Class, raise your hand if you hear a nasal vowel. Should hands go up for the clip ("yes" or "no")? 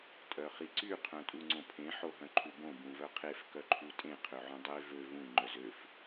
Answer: yes